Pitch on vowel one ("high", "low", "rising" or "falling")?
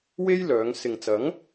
high